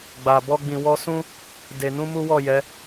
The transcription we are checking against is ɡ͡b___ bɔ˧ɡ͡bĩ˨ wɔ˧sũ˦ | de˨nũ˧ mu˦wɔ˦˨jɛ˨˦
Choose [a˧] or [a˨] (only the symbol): a˨